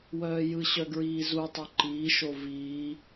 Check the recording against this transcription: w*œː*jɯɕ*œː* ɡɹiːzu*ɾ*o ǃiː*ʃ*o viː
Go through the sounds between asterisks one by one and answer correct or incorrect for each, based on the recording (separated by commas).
correct, incorrect, incorrect, correct